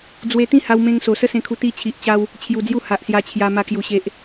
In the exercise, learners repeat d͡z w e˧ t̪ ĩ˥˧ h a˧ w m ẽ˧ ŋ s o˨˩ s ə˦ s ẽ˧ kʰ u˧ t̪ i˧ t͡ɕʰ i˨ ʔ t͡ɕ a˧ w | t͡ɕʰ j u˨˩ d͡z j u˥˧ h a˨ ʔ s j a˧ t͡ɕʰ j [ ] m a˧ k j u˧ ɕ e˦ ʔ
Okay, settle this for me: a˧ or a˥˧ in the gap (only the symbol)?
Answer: a˧